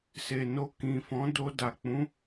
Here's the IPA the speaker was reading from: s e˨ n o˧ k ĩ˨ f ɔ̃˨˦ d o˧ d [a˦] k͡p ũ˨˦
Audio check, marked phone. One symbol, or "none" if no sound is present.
a˨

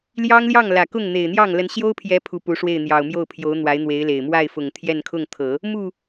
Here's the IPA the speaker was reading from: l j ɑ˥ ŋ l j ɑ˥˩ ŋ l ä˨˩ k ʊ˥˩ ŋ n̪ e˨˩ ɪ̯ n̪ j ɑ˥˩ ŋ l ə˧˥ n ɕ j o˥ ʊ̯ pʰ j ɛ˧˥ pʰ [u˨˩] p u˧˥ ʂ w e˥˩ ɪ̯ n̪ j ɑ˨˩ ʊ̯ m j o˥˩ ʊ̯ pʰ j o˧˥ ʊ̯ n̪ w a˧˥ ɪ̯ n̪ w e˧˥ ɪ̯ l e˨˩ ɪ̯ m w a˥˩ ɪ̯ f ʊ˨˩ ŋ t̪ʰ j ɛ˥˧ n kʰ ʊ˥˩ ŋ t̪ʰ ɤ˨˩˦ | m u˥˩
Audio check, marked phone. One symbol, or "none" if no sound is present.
u˨˩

